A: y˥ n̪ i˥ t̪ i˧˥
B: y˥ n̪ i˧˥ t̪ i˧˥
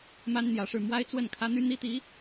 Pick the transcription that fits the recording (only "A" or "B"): A